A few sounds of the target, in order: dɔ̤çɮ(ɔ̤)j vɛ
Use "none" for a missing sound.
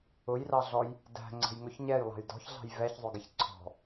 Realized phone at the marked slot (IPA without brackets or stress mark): ɑ̤